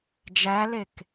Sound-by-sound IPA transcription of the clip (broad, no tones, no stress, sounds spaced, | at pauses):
d͡ʒ æ l e k